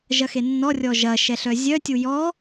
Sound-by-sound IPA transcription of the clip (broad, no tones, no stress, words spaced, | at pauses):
ʒɐxenːɔrʲɔ ʒɐ ʃɛɬœzʲœtʲu jɔ